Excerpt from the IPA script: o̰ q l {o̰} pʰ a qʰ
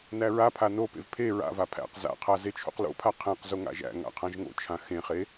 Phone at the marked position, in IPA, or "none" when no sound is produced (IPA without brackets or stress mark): o̰